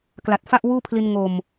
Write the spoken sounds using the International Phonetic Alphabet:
k l a˨˩ t̚ f a˥˩ ʔ w uː˥˩ pʰ l i˧ n ŋ o˨˩ m

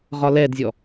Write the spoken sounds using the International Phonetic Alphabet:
ʁ ɒ l ɛ d zʲ ɔ

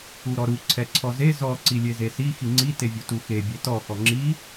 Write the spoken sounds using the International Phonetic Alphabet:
u ɾ ɔ ɾ u ǀʰ ɛ ǀʰ ɔ z e z ɔ ǀ i lʲ e z e s i x i ŋ͡ǀ i t e vʲ u t u x e bʲ e t ɔ x ɔ ŋ͡ǁ i

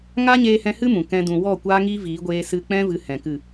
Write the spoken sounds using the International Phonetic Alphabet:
ŋ a˦ ɲ eː˧ h ɛ̃˧ h ɨ˦ m ũ˨ k ɛ̃˦ d ũ˨ w ɔ˦˨ kʷ aː˦ ŋ iː˦ v iː˨˦ ɡʷ eː˧ s ɨ˧ k͡p ɛ̃˦ v ɨ˧ h ɛ̃˨ k ɨ˦˨

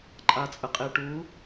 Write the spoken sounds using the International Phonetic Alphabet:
ǃʼ a t͡sʼ ə qʼ e ʈ u

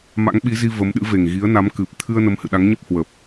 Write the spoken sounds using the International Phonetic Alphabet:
m a̰˧˥ ŋ ɓ i˨˦ z i˧ v ə˨˦ m ɗ ɨ̰˧˥ v e˨˩ ŋ ɣ i˨˦ ə̯ n a˨˦ m k ɨ˨˩ p̚ t̪ʰ ɨ˧ ə̯ n ə˨˦ m h ɨ̰˧˨ ɗ a˨˦ ŋ ɲ ə˦˥ p̚ h w ə˨˩ p̚

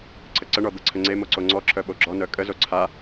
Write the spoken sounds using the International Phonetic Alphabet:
ǀʰ ə ǀ ə ɳ ɔ d̪ ə ǀʰ ə ŋ͡ǀ e m o ǀ o ŋ͡ǀ ɔ ǁʰ œ ɓ o ɡ͡ǁ ɔ n œ kʼ ə z o ǀʰ a

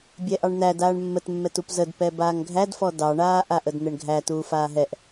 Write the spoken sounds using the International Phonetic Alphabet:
bʲ ɛ ʔ ɑ ɳ n̪ æ d aː ɳ mː ə t mː ɛ t u p z ə d p ɛ b aː ŋ ɡʱ æ d f ɔ d ɑ ɳ aː ʔ a ʔ ə d n̪ ɛ ɳ ɡʱ æ t uː f aː ɦ ɛ ʔ

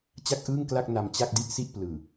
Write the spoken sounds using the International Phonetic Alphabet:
t͡ɕ a˥˩ k̚ ʔ ɯː˥˩ ŋ k l a˥˩ k̚ n a˧ m t͡ɕ a˥˩ k̚ d i˥˩ ʔ s i˥˩ ʔ p l ɯː˨˩

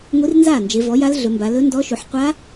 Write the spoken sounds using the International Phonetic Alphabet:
ŋʷ i˧˥ r n z aː˥˩ n d͡ʒ e˩˧ v ɔ˩˥ j a˧˥ l ɮ ɵ˩˧ m b a˩˧ l ɵ˧˥ n d ɔ˧˥ ʃ u˩˧ ħ qʷ a˧˥

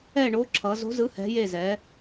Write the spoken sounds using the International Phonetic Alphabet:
ɛ˥˧ ɳ o˧˥ ǁʰ ʌ˧˥ z o̤˧˥ z ɯ˧˥ h ɛ̤˧˥ j e˥˧ z ɛ˧˥

